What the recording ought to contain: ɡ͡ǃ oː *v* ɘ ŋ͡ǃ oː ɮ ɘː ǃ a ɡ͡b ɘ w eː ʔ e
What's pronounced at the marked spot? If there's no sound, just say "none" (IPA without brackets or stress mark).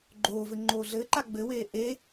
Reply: v